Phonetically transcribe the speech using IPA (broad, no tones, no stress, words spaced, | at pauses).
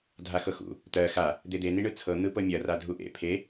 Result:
dʱaxɤxṵ | t̪ɜ xa | d̪ed̪e niɳɯt͡sʰɤ n̪ɯpɤmʲɐ radʱuʔḛ pʰe